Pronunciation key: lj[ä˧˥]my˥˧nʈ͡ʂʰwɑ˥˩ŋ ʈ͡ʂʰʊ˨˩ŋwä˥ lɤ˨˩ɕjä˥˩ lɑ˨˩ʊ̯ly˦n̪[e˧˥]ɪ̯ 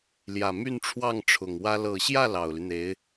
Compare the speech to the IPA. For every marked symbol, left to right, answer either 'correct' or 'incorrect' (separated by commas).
incorrect, correct